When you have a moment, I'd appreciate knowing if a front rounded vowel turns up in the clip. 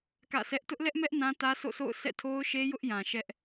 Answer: no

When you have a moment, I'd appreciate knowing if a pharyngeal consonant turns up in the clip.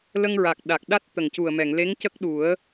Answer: no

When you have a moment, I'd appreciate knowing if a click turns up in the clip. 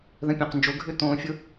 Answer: no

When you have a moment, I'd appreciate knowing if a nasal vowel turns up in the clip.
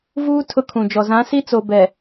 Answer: yes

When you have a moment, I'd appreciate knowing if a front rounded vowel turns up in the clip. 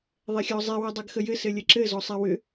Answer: yes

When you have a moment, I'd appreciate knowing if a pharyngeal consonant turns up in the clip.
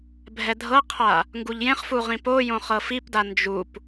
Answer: no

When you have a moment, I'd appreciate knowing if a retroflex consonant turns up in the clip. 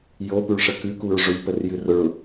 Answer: yes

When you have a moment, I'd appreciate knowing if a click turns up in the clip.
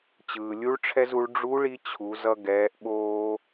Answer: no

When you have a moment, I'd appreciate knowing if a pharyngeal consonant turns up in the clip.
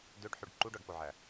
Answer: yes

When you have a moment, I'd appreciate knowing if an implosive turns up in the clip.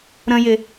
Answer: no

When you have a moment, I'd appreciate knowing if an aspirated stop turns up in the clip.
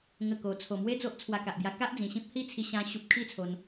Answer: yes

